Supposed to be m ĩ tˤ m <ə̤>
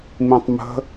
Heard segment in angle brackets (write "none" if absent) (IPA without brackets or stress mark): ə̤